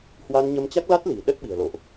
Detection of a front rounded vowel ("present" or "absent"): absent